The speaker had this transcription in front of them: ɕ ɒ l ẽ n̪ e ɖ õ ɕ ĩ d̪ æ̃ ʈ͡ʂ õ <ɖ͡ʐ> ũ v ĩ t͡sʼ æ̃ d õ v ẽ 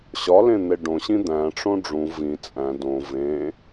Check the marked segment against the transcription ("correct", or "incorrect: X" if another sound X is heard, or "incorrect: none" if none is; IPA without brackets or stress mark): correct